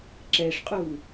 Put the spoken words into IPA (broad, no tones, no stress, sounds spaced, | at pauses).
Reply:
ǁ ɛ ʂ qʼ u